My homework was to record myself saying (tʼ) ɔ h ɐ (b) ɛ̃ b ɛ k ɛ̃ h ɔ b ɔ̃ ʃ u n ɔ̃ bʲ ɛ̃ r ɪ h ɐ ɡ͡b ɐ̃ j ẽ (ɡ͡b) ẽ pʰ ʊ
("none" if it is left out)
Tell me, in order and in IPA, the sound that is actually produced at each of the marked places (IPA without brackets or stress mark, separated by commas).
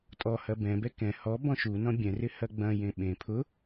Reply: tʼ, b, ɓ